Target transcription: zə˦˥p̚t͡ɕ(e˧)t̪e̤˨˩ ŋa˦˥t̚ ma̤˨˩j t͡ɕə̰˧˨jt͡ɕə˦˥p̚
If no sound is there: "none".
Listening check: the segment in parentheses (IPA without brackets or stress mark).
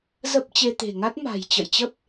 e˧